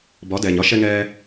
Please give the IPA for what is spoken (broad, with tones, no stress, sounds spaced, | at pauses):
b ɒ˨˦ d ɛː˨ ɲ ɒ˦ ʃ ɛ˧ ŋ ɛː˧